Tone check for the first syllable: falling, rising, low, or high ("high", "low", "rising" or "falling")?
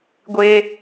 high